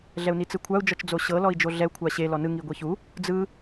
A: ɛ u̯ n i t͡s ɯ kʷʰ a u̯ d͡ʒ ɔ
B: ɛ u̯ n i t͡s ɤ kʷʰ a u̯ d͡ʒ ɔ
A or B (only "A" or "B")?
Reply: A